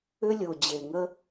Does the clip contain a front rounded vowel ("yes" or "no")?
yes